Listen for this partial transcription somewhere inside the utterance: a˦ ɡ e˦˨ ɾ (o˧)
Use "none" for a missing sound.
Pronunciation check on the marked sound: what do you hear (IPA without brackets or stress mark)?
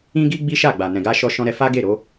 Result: o˧